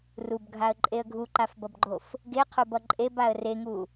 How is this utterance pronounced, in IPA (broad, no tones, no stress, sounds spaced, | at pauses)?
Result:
r u b ɡʱ a ə̯ ǃʼ e ə̯ ɡʱ u ǃ a f b ʌ b ɡ͡ǃ o f | ɡ e qʰ o b ʌ ǃʼ e b a ə̯ r e ŋ u